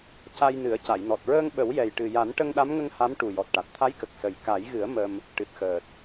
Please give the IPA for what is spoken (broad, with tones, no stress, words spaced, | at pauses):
ca˧jnɨ˨˩˦ə̯ ca˨˩˨jnɔ˨˩t̚ɹəː˧ŋ ɓə˨˩˦wjɛ˨˩jʈɨ˨˩ja˨˩˦n ʈə˧ŋɗa˧˥mŋə˧ŋ ha˧˥m ʈu˨˩jɔ˨˩t̚ ʈa˨˩t̚t̪ʰa˧˥jkə˨˩k̚ sə˨˩j ka˨˩˦jɣɨ˨˩˦ə̯ mə˧m | ʈɨ˨˩t̚xəː˨˩t̚